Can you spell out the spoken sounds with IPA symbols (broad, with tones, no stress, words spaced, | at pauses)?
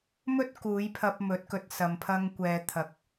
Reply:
mɵ˥t̚ kuː˨˧jpʰɐ˧p̚ mɵ˨˥t̚kɵ˨t̚sɐ˨m pʰɐ˧ŋkʷɛː˨t̪ʰɐ˨˥k̚